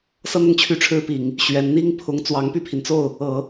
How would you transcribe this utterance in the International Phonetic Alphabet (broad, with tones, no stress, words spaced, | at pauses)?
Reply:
sɤ˥n̪ʊ˥˧ŋ t͡ɕʰy˥˩ʈ͡ʂʰɻ̩˥pi˨˩˦ŋ | ɕɥɛ˧˥n n̪i˥ŋpʰʊ˧˥ŋ t͡swɑ˧˥ŋpy˥˩pʰi˩nt͡so˥˩ʊ̯ | ɤ˨˩˦